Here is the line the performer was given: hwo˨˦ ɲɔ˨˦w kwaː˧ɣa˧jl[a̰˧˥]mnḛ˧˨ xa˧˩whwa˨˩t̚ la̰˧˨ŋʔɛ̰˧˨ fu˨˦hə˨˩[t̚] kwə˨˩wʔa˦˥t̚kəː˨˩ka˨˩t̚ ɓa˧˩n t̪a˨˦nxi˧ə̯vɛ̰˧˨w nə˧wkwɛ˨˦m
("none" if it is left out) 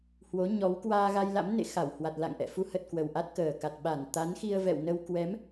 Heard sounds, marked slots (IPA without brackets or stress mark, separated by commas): a̰˧˥, t̚